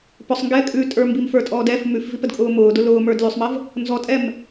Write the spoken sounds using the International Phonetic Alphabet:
p ʊ sˤ ŋ ɡ ɛː kʼ ʉ tʼ ə˞ m b i m f ə˞ tʼ ɔː d ɛ f m ʉ f v i p ə d kʼ ʊː m ʊː d ʊ l ʊː m ə˞ d l ʉ sˤ m ə v | n z ɔ tʼ ɛ m

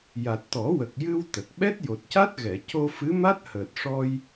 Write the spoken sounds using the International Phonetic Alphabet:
j a˨˩ t̚ t̪ ɔ˨˩˦ w ə˨˩ k̚ j ɨ˧ w t̪ ə˨˩ k̚ ɓ ɛ˦˥ t̚ j o˨˩ t̚ c a˦˥ t̚ ɣ ɛ˨˩˨ c o˧ f ɨ˧˥ m a˦˥ t̚ h əː˨˩ t̚ ʂ ɔ˧ j

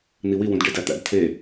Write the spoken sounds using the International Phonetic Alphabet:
n̪ i w i w ũ d ɖ e d æ t̪ æ̰ d tʰ e

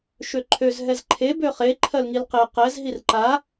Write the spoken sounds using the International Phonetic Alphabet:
ʃ ø ǃʰ ø z ɦ ɛ z ǃʰ e b ø χ e ǃʰ ɜ l ŋ i l q e q ɛ z ɦ i r ǃ a

